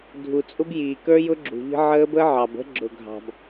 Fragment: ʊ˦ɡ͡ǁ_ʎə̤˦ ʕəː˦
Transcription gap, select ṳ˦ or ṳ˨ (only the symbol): ṳ˨